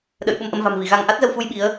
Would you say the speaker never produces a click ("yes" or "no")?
yes